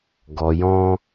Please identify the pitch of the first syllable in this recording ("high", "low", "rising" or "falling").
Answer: low